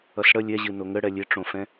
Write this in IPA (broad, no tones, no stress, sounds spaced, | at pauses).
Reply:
ʌ s ɽ ə lʲ ɛ ʑ ɨ n o ŋ ə ɽ ɛ lʲ e ʈ͡ʂ õ f ɛ̃